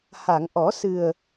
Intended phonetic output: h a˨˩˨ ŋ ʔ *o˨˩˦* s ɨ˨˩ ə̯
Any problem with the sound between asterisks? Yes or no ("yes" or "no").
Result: yes